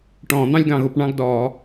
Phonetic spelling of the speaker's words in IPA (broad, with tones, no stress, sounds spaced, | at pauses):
ʈ ɔ̃ː˧˩˧ n̪ ɑ̃˦˥ lʲ ɡ ɑ̃˧˩˧ ɣ ʊ˧˩˧ p ɳ ɑ̃˥˧ ɡ d ɔː˧˩˧